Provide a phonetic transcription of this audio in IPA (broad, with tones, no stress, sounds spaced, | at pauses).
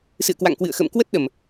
s ɨ̰˧˨ ə̯ k w a̰˧˨ ŋ k w ɨ̰˧˨ ə̯ x ə̰ː˧˨ m k w ə˦˥ t̚ ɗ ə˨˩ m